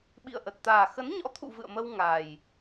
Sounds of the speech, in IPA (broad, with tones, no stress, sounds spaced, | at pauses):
ɓ ḭ˧˨ ə̯ ʔ ə˨˩ t̚ t̪ aː˨˩ x ə˨˦ n ɲ ɔ̰˧˥ t̪ʰ ṵ˧˨ v ɨ̰˧˨ ə̯ m ə˧ w ŋ a˨˩ j